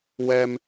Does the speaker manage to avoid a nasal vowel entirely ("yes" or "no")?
yes